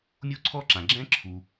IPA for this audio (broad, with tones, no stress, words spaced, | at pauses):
mʲo˥ǀʰɔ˥ǁã˩ ɡ͡ǁɛ̃˥ǁʰu˩